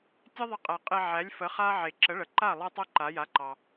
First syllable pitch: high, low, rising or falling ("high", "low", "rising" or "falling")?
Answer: high